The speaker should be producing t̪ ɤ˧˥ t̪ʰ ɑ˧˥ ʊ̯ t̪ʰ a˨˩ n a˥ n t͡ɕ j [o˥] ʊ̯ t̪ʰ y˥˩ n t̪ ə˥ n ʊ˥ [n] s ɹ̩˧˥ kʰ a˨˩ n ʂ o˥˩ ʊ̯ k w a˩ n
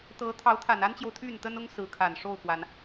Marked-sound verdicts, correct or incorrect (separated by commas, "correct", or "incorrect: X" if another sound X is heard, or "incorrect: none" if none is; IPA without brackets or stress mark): incorrect: o˨, incorrect: ŋ